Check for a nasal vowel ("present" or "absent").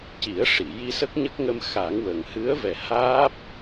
absent